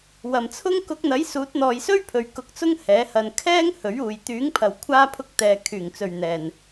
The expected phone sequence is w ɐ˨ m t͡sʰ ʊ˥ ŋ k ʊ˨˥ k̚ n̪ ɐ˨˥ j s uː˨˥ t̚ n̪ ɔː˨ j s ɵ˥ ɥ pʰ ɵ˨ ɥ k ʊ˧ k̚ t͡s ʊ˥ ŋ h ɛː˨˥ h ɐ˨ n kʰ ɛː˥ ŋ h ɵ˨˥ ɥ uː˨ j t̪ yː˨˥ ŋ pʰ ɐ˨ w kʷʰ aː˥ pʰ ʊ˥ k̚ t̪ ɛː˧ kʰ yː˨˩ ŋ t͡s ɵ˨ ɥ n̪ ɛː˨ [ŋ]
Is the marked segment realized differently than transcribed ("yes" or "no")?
yes